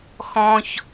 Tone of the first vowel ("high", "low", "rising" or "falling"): high